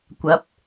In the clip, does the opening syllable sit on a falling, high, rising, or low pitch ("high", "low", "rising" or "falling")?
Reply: rising